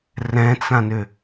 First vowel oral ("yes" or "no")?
no